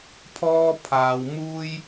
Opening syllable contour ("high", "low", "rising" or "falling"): high